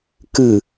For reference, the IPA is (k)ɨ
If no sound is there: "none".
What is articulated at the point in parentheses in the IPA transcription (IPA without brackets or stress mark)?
k